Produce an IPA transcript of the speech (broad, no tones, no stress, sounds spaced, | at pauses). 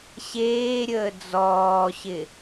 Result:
ɕ eː ɾʲ əː d͡z ɔː ɕ ɪ